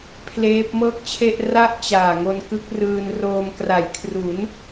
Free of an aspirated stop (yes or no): no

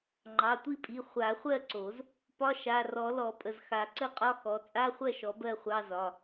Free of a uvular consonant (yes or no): no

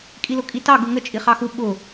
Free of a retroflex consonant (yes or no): yes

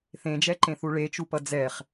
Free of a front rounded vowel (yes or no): yes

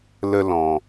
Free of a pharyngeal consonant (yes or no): yes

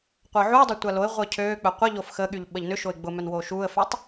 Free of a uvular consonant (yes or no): no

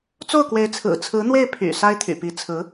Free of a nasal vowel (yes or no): yes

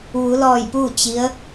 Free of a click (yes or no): yes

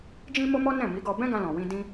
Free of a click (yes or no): yes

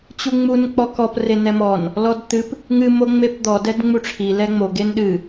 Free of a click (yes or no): yes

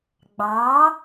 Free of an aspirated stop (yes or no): yes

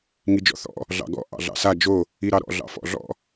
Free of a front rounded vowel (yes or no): yes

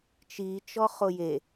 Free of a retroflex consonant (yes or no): yes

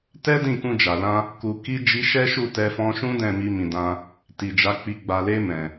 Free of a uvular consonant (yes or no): yes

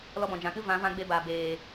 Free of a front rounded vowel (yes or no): yes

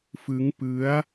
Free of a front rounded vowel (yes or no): yes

